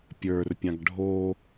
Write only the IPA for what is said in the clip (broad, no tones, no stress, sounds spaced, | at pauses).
pʲ ə˞ r pʲ ã ɡ ɖʱ o